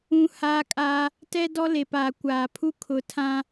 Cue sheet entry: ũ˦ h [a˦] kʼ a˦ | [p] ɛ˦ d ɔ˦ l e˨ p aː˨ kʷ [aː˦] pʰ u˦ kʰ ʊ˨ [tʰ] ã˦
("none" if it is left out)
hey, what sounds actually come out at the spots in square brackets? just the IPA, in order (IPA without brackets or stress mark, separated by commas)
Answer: aː˦, t, aː˨, tʰ